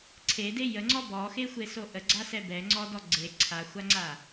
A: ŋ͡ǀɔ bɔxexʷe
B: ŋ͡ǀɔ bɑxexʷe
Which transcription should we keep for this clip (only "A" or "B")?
A